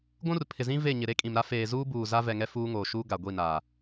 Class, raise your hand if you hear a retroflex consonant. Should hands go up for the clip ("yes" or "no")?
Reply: no